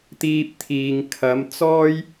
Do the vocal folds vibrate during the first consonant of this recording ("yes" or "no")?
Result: no